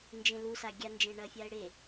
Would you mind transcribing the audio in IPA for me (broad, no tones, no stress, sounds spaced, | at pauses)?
n d͡ʒ ẽ l u s a ɡʲ a n d͡ʒ ẽ ɳ ɐ fʲ a ɪ̯ ɽ e